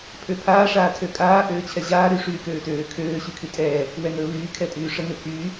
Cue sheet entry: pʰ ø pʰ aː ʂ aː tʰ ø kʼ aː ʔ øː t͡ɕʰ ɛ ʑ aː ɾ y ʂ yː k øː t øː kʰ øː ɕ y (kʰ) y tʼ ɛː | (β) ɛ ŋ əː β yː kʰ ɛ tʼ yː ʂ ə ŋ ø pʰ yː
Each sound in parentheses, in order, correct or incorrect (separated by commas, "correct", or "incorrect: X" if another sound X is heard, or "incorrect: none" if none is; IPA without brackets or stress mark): correct, incorrect: w